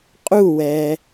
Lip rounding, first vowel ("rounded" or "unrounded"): rounded